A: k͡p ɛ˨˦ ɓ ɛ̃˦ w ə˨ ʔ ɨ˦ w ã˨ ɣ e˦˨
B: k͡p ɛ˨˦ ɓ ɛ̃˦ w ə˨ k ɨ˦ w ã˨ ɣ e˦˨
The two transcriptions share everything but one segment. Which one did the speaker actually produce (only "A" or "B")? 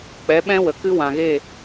B